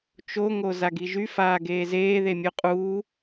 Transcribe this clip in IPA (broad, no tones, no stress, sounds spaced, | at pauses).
t͡ʃ o ŋ o z a ɡ i ʒ y f aː ɡ eː z eː ð e mʲ u qʼ uː